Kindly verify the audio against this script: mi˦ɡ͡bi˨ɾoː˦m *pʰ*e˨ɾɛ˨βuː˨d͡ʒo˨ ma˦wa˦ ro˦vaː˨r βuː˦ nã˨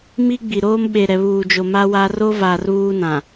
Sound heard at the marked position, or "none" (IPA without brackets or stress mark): ɓ